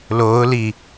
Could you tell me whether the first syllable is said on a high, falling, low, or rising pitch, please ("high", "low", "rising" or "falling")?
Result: rising